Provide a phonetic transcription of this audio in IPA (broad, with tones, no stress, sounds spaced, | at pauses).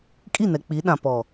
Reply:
kʼ i˦˨ n ɛ˨ k͡p i˨˦ ɗ ã˨ p ɔ˨